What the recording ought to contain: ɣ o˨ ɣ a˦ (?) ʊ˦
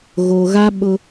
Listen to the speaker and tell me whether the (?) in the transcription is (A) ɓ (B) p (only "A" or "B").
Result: A